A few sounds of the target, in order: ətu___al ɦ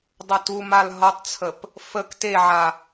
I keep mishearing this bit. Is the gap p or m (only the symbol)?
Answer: m